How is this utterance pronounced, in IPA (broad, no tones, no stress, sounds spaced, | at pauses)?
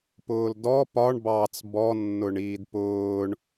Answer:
p ʊː l d ɔ p ɒ ɳ b ɑ t͡s b ɔ nː ʊ ɳ iː d p ʊː ɳ